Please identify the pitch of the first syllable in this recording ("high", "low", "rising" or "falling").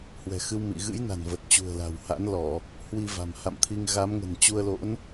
low